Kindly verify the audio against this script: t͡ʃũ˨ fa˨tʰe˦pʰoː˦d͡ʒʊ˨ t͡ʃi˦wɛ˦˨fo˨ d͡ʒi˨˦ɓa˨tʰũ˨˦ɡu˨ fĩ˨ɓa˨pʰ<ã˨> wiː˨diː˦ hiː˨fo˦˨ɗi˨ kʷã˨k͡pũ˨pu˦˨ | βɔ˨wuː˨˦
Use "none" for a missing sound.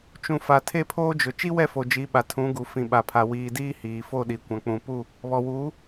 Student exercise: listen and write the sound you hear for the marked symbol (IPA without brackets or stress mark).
a˨